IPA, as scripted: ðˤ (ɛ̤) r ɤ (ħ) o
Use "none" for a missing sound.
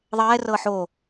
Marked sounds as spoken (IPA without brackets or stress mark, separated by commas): ɛ, ħ